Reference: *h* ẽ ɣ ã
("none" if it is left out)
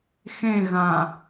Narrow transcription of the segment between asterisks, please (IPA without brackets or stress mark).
x